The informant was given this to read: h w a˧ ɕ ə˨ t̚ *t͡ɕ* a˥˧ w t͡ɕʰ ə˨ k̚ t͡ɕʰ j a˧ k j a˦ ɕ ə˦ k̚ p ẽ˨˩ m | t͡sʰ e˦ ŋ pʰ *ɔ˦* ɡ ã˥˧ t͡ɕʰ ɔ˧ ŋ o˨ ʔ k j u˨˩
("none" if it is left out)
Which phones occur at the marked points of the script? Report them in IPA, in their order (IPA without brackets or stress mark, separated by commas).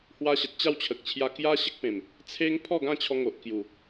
t͡ɕ, ɔ˥˧